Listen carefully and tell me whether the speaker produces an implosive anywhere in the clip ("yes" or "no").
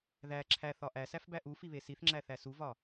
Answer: no